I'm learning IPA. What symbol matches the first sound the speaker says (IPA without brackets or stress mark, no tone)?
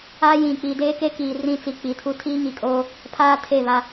a